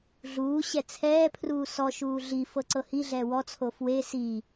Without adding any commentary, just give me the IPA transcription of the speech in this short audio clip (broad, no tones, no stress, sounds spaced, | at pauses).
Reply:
ɮ uː ɕ ɛ t͡sʰ ɛː pʰ r uː s ɔ ʃ uː ɮ i f ɤ ǀ ɤ h i ɮ ɛː w ɔ t͡sʰ o f w e s i